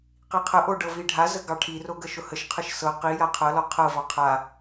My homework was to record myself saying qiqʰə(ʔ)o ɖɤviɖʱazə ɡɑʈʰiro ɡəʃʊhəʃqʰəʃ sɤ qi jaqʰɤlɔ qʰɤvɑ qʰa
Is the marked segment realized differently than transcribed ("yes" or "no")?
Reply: no